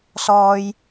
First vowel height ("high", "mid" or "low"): mid